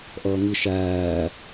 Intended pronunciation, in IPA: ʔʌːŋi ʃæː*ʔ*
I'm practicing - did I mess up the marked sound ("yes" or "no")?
yes